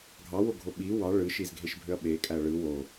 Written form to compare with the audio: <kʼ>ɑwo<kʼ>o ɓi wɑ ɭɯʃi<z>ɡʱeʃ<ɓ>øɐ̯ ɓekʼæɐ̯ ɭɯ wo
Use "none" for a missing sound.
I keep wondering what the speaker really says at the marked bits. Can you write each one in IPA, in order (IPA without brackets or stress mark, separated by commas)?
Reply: ɡʱ, ɡʱ, z, bʱ